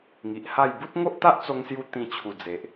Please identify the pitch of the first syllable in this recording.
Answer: low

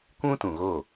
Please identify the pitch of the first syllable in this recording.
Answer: high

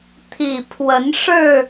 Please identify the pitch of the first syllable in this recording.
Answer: low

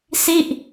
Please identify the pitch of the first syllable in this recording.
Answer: falling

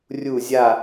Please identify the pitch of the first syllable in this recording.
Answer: falling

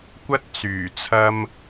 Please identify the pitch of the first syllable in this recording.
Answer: high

